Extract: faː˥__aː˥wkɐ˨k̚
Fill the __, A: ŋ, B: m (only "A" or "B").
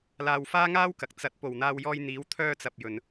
A